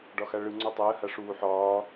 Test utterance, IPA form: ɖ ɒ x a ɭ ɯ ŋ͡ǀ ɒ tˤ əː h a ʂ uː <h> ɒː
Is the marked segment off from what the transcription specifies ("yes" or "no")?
yes